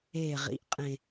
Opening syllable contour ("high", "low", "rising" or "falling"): low